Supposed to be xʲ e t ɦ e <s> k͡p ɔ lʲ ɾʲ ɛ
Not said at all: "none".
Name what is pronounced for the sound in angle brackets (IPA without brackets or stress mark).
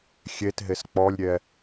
s